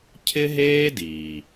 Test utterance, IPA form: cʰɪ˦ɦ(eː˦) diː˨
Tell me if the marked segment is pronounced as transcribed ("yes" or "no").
yes